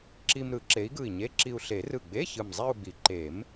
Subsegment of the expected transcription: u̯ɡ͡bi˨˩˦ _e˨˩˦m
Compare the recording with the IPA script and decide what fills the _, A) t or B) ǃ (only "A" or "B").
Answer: B